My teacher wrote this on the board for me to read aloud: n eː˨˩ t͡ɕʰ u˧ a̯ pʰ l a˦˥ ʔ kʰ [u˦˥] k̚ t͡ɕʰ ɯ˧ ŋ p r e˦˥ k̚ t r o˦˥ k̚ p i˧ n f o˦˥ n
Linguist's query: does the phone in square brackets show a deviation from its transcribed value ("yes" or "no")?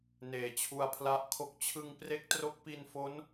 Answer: yes